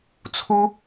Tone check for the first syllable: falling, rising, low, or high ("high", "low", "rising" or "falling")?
high